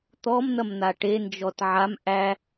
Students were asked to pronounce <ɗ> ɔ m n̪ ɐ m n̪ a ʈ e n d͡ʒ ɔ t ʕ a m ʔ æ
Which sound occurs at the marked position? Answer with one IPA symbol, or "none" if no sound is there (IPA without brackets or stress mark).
t̪